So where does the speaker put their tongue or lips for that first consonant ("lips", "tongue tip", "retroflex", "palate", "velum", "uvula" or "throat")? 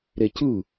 tongue tip